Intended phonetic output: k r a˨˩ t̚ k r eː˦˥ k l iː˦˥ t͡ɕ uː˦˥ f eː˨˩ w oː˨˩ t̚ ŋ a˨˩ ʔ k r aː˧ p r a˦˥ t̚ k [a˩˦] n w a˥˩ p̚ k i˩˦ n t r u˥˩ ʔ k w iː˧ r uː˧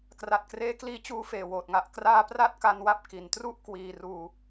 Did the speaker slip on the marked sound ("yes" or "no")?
yes